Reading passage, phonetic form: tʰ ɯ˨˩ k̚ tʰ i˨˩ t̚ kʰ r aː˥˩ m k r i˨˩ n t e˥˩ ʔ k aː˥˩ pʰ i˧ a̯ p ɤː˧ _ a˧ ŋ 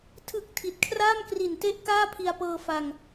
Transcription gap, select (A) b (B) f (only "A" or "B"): B